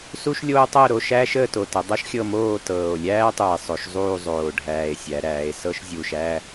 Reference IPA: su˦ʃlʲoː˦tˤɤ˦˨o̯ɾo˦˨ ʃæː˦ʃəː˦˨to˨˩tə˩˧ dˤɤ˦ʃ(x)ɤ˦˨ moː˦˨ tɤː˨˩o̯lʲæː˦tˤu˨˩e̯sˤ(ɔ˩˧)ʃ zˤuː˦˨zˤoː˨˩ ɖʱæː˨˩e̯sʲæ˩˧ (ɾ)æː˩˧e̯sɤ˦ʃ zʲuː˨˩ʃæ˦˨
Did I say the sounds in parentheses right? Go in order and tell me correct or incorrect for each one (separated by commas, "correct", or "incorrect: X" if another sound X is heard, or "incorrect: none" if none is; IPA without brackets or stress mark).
incorrect: xʲ, incorrect: o˩˧, correct